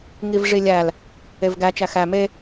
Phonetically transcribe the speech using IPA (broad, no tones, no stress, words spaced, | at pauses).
ŋivʐilʲæl | evɡæ t͡ʃæxæ me